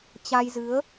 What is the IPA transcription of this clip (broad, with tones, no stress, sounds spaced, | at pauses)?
t͡ɕ a˧ j z ɨ˨˦ ə̯